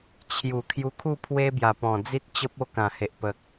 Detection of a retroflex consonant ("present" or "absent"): absent